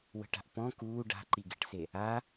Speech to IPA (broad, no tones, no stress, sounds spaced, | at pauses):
w ə̤ ʈ a̤ ʔ p ɔ̃ k uː ɖ a̤ ǃ i ɡ e ʈ s e | a